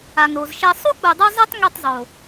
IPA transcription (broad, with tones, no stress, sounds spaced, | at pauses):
a˨ ŋ ɾ o˨ z ʃ ɛ˧ sˤ u˦ k͡p u˨ dˤ u˧ zˤ e˦ tˤ ŋ i˦˨ tˤ zˤ o˨